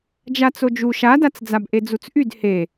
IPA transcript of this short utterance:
d͡ʒat͡sod͡ʒu ʃadat͡s d͡zabʔed͡zut͡sʔyd he

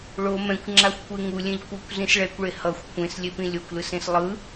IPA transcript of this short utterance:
ɭo mɛ̃kʷŋ͡ǁaxʷkʷe ŋulʲẽʎ kʷʌkʷ zĩsɭɛkʷɭe hʌxʷ kʷẽs lʲepĩlʲokʷlɯs ẽslˠɯ

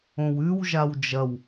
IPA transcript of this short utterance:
õwʉw ʒawd͡ʒɐw

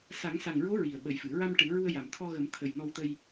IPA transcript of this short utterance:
sa˨˩˦ŋsa˨˩ŋɹo˧˥ ɹi˨˩ə̯ɓə˨˩˦jfɨ˨˩˨ ɹa˧m ʈɨ˨˩˦ɹu˧ə̯ ja˨˩m t̪ʰɔ˧ɣə˨˩˦m t̪ʰə˨˩j nɔ˧wt̪ə˧j

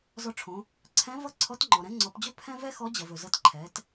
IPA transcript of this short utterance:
zɔ˧ʈ͡ʂʰõ˩˧ | ǀʰɛ̃˧˥ vʌ˥ ǀʰɔ˧˥tŋ͡ǃɔ˩ ɾɛ̃˧˥ŋ͡ǀɔ˩˧pd͡ʑɵ˥ pʰɛ̃˥ vɛ˥xɔ˧˥d͡ʑʌ˩v ɵ˩zʌ˧tǃʰɛ˩˧t

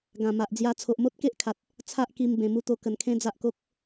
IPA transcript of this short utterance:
ɡã˨˩ma˨ʔ d͡zja˧ t͡sʰo˨ʔmo˦t̚ke˦ʔkʰa˨t̚ | t͡sʰa˦ʔ ki˧m bẽ˨˩mu˧t̪o˧ kə˨˩nkʰẽ˦d͡za˦ʔko˦k̚

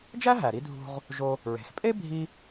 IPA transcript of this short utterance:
d͡ʒæ˥ɦæ˩ɾi˧ dʱṳ˧ʁ | ʒo˧ | ɹe̤˩xpʼe˥ bʱi˥

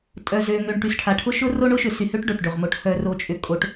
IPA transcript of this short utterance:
tʼœ˨zø˨ŋø˨ɳ ʈy˨sʈʰa˨ ʈʰʊ˦ ʃʊ˦ro˦ ɳʊ˦ʃʏ˨sy˨hø˦ʈ ɖo˨ʈɖø˨ʁ mo˨ʈ hœ˨ro˨t͡ʃʼʏ˨ kʼo˦ʈ

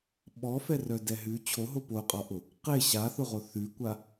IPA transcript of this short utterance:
ɓɔfɛrœdɛ ɦʉ t͡ɕʰoɦo poqʼɒʔʊ | qe ɕaθʊʁo θʉkʷa

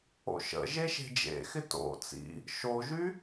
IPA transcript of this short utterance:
o̰ʃə̰ ʒeʃe̤d͡ʒḛxɪ to̰ t͡sḭ | ʃoʒy

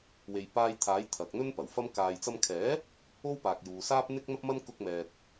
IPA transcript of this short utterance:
we˨jpaː˧j t̪ʰaː˨˥jt̪ʰɐ˨k̚n̪ɵ˥n pɐ˨˩wfɐ˥m kaː˨jt͡sɐ˧mkʰɛː˨˥ | o˥wpaː˨k̚juː˨saː˥p̚ n̪ɪ˥k̚n̪ɐ˥p̚mɐ˥n kʊ˥k̚mɛː˧t̚

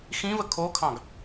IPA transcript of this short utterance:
xĩvə kʰokʰɑ̃ɡ

